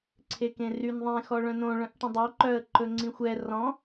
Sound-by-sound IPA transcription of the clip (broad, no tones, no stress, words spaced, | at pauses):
ǀʰekẽryn ðˤẽxɔɭœ̃ nõɭœ̃ʔʈĩ dˤoǃœə̯ ǃɵŋ͡ǀĩxʷɛ rɔ̃